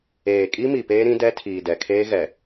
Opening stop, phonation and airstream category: ejective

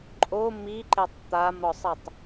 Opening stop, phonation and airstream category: click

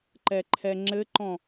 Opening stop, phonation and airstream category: click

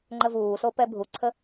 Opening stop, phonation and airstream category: click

